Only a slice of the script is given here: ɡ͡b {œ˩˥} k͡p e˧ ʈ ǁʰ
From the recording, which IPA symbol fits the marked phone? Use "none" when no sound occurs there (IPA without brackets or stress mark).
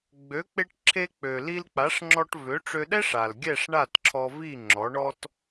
ø˩˥